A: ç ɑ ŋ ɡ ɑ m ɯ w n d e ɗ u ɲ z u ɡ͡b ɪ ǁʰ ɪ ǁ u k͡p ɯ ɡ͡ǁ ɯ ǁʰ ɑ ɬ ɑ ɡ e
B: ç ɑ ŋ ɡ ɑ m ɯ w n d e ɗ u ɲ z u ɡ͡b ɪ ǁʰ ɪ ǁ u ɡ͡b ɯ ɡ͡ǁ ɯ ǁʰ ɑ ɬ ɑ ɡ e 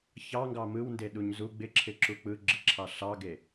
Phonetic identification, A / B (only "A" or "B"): A